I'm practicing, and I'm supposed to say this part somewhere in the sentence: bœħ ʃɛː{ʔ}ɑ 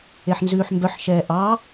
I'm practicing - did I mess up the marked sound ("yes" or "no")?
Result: no